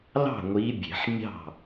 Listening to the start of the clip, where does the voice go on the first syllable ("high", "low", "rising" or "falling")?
falling